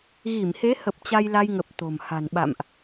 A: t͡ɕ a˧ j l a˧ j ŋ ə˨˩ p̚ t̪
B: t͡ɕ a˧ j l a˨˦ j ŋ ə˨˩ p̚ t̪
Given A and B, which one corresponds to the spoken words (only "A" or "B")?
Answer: A